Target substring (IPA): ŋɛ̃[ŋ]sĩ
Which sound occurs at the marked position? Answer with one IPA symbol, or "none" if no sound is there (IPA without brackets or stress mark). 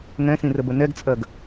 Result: none